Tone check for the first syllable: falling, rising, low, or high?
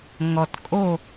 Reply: low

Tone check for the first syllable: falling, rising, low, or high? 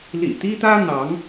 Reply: low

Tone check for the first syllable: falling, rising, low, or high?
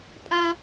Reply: high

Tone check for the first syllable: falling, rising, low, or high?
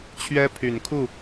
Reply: high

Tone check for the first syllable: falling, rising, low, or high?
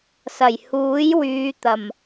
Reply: low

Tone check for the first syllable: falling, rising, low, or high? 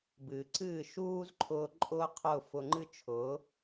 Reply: low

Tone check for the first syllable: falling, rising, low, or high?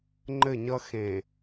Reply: falling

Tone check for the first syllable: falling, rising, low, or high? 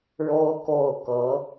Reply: high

